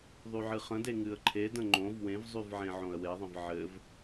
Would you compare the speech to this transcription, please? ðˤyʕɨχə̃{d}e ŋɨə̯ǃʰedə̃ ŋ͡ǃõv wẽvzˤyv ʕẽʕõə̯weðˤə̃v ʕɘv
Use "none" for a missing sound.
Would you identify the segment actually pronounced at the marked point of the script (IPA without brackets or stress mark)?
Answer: d